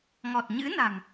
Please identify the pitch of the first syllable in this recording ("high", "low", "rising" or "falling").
low